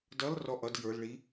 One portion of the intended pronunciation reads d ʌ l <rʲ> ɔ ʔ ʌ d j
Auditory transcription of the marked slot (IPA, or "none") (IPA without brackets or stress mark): r